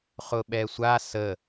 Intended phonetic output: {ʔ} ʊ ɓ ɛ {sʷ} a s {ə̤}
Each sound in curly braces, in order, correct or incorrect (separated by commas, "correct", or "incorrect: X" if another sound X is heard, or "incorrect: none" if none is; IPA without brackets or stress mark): incorrect: χ, correct, incorrect: ə